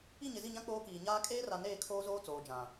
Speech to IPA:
i˦˨ ɲ ɪ˨ z i˦˨ ɲ ã˦ k͡p oː˦ k iː˨ ɲ aː˦ kʼ eː˦ r a˨ n eː˦˨ kʰ oː˦ z oː˦ t͡s oː˨ d͡ʒ ã˨

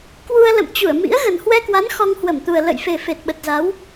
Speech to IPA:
k w u˧ ə̯ l ə̰˧˨ m t͡ɕ u˧˩ ə̯ m ḭ˧˥ ə̯ ɣ ə˨˩ n h w ɛ˧ k w a˨˦ n x ɔ˧ ŋ h w ə˧˩ m t̪ u˨˩ ə̯ l ə̰˧˨ j f e˨˩ f e˨˩ t̚ ɓ ə˨˩ t̚ z a˨˦ w

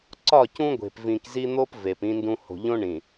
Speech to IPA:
ǀ ɒ˦˨ c ũ˦ ɡʷ e̤˨ p v ĩ˨ k z i˦ n̪ o˦ p v e˨ p ĩ˦ n d ũ˦ h o̤˨ ʎ õ˦ ɳ ĩ˨

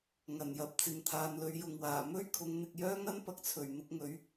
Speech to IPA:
ŋ ɐ˨˩ n j ɐ˨ p̚ t͡s ɪ˨ ŋ t̪ʰ aː˨˧ n l ɵ˨˧ ɥ j ʊ˨ ŋ w aː˨˩ m ɵ˥ ɥ kʰ ʊ˨˧ ŋ n̪ ɪ˨ k̚ j œː˥ ŋ ɐ˥ n p ɐ˨˥ k̚ t͡sʰ ɵ˨˩ ɥ n̪ ʊ˧ k̚ ŋ ɵ˨˥ ɥ

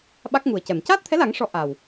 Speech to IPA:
ɓ a˦˥ k̚ ŋ u˨˩ ə̯ c ɛ˨˩˨ m c aː˦˥ t̚ t̪ʰ ɛ˧˥ l a˨˩˦ ŋ ʂ ɔ˨˩˦ ʔ a˨˩ w

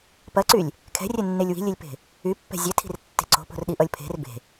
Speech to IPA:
p ɐ ǀ y lʲ | kʰ ɛ̤ rʲ ɛ nː e lʲ w i̤ lʲ e lʲ p e̤ | y pː ɛ̤ zʲ ɛ tʰ i̤ r tː e̤ ǀ o̤ p o̤ r ɗ i ʔ ʌ lʲ pʰ e̤ r b e̤

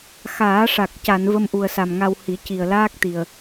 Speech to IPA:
x aː˨˩˦ ʂ a˨˩ k̚ c a˨˩˨ n v ə˧ m ʔ u˨˩ ə̯ s a˨˩ m ŋ a˧ w h i˨˩˦ c i˨˩ ə̯ l aː˦˥ k̚ t̪ i˨˩ ə̯

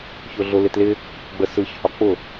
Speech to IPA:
ç ʊ ɮ ʊ l ɪ t l ɪ | ɡ͡b ə s ɯ ç h ɒ k͡p ʊ

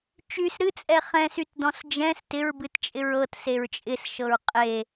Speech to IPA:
t͡ʃ y s ɾ ɨ t͡sʼ ɛ χ ɛ̃ s y t d ɔ̃ s d͡ʒ ɛ̃ s t ɪ ɹ b ɨ t t͡ʃʼ ɪ ɹ ɤ t s e ɹ t͡ʃʼ ɪ s ʃ ɤ ɹ qʼ e

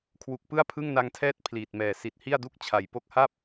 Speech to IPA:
kʰ w u˨˩ k̚ p ɯ˥˩ a̯ pʰ ɯ˥˩ ŋ n a˧ ŋ tʰ ɛː˥˩ t̚ pʰ l iː˨˩ t̚ m ɛː˨˩ s i˨˩ t̚ h i˥˩ a̯ d u˥˩ k̚ t͡ɕʰ a˨˩ j p o˦˥ k̚ h a˥˩ p̚

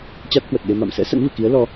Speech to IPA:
t͡ɕ a˦˥ t̚ h w ə˨˩ t̚ ɗ e˧ m a̰˧˨ m s ɛ̰˧˥ s ə̰˧˥ n v ɨ̰˧˨ k i˨˦ ə̯ l ɔ˧

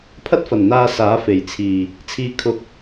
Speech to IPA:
pʰ ɐ˥ t̚ f ɐ˨˩ n n̪ aː˥ s aː˨˥ f e˨˩ j t͡sʰ iː˨˩ | t͡sʰ iː˧ kʰ ʊ˧ k̚

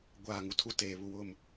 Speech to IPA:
ɡʷ aː˦˨ ŋ u˨ tʰ u˦ t eː˨ β u˨ w ʊ˦˨ m

